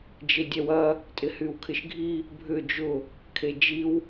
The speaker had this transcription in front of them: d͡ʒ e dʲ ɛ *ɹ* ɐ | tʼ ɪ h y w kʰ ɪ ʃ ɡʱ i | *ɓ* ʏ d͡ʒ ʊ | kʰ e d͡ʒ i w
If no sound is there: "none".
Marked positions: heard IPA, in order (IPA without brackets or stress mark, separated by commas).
w, bʱ